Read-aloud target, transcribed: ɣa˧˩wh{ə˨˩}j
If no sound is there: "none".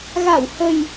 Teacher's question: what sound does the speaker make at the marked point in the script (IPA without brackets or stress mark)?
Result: ə˨˩